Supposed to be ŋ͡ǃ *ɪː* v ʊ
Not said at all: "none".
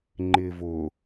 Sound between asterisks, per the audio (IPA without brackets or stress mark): ɪː